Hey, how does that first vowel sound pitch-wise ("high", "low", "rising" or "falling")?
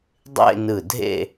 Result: falling